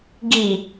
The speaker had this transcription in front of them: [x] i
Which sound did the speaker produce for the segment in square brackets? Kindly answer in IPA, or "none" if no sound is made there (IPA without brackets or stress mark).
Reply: ɡ